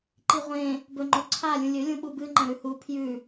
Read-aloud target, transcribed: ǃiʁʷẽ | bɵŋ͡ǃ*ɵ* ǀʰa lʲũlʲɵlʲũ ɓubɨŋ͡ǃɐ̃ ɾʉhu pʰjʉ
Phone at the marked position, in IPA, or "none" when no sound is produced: o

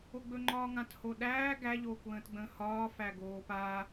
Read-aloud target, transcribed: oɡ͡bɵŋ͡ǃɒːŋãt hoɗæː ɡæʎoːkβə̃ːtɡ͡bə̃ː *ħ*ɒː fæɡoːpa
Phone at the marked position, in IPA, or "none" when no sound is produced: h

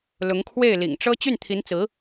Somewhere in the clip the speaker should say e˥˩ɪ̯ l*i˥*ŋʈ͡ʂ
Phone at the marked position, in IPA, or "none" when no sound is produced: ḭ˨˩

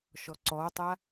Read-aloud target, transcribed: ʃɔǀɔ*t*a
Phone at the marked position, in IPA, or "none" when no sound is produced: tˤ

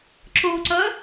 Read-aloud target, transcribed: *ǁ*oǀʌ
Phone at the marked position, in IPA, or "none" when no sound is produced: ǁ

